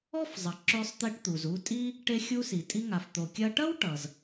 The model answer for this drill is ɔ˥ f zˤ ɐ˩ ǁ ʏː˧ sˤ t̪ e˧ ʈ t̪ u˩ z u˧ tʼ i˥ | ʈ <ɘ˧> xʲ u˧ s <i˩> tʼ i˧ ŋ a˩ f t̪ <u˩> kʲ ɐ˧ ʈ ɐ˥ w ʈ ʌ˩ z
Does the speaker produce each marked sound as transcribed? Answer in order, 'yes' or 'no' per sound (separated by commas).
no, yes, no